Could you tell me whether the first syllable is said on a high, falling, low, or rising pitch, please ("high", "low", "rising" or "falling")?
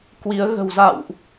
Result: rising